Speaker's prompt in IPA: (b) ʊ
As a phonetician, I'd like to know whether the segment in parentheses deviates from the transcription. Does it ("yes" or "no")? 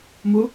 yes